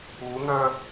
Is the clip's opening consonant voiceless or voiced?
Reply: voiced